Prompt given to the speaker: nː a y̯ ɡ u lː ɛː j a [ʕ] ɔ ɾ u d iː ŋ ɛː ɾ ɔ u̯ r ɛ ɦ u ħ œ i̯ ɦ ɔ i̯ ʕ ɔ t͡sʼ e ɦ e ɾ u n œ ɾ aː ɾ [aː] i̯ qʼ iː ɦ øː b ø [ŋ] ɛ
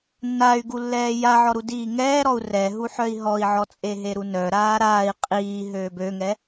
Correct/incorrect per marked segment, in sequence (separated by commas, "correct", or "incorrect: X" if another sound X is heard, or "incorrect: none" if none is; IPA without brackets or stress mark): correct, correct, correct